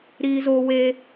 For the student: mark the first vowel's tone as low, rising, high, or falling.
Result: high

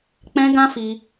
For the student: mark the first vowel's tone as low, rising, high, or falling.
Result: high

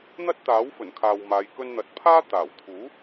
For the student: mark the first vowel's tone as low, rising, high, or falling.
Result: high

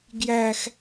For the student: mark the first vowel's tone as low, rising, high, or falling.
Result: high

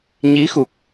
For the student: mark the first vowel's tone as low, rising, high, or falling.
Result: rising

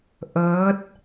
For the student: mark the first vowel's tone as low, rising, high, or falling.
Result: rising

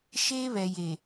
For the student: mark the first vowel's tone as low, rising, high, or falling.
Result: high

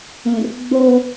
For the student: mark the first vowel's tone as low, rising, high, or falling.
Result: low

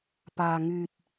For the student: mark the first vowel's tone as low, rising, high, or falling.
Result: low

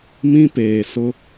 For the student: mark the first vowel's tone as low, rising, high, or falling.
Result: high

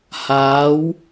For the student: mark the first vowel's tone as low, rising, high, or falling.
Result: rising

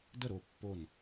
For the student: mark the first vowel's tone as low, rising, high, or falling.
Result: falling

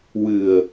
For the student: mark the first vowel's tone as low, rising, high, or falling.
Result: low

